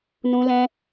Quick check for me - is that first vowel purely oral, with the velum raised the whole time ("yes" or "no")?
no